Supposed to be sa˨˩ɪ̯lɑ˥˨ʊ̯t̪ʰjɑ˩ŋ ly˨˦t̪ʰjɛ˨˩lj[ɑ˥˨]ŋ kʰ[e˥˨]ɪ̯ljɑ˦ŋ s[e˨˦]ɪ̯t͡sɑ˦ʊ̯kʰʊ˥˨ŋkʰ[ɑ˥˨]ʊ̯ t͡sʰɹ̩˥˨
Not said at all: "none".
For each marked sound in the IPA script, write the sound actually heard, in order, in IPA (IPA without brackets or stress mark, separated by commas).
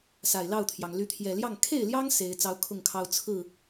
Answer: ɑ˥˨, e˥˨, e˨˦, ɑ˦